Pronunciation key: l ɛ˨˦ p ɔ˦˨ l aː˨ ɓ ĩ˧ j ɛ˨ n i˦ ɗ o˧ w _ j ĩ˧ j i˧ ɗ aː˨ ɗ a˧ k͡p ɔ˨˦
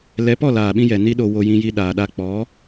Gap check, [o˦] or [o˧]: o˧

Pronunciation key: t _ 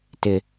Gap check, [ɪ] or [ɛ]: ɪ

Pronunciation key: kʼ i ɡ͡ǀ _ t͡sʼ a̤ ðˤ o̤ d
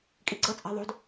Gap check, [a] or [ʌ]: ʌ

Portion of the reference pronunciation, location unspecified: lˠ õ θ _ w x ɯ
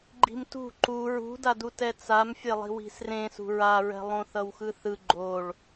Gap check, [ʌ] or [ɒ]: ʌ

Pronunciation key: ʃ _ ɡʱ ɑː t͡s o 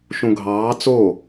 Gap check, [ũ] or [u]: ũ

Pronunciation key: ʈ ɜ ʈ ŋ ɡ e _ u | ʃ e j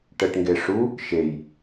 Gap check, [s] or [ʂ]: ʂ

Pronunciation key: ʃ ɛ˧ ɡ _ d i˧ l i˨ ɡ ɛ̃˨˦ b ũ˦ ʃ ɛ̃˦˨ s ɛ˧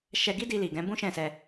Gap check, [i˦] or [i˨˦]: i˦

